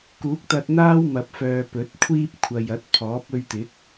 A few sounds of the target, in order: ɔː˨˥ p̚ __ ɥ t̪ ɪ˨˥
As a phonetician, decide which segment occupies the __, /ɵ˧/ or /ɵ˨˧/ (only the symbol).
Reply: ɵ˧